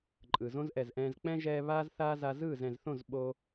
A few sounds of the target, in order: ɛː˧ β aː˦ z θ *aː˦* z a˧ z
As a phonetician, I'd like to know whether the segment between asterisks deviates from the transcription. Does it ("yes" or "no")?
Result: no